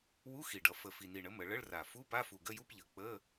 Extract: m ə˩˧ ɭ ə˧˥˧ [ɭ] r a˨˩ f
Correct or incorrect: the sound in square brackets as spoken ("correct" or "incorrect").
correct